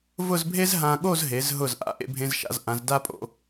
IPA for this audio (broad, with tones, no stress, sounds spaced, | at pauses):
v ʊ˥˧ z bʱ e˥ z ɦ ã˧ ɠ o˥˧ z ɦ e˩˧ z ɦ ʊ˧˩ z ʔ a̰˩˧ ʔ ḛ˧ bʱ ẽ˧ z ʃ a̰˧ z ʔ ã˩˧ z d a˥ pʼ o̰˥˧